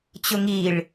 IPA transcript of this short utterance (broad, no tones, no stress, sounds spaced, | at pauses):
t͡ɕ ʊ ŋ i ɭ